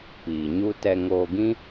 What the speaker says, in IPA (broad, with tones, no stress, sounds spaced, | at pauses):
p iː˨ ɲ u˦ t ɛ˧ ŋ oː˧ ɡ ĩ˦